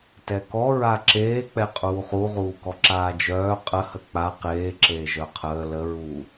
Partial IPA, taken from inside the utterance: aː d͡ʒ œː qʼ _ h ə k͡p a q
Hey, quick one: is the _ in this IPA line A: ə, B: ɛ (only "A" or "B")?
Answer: A